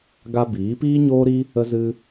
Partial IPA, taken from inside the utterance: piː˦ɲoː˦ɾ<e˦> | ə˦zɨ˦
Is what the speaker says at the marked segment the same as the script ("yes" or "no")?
no